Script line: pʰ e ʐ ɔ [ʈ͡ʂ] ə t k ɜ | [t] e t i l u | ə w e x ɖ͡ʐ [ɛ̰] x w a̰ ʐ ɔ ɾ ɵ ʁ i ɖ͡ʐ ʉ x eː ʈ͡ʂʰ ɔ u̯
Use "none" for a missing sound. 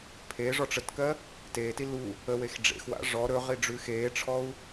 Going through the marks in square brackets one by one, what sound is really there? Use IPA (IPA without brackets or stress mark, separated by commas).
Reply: ʈ͡ʂ, t, ḛ